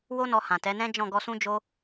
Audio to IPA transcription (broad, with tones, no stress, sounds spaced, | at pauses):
w o˦ n ɔ˧ h ã˨ t ɛ˨˦ n ɛ̃˦ d͡ʒ ɔ̃˦˨ ɡ ɔ˧ s ũ˦ d͡ʒ o˦